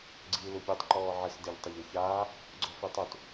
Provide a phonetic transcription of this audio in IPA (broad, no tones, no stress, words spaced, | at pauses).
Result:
ɡ͡ǀiːlupʲetˤ ǃɔːʕɘs deʎtˤɐʎuçaː | ɡ͡ǀɔfitˤut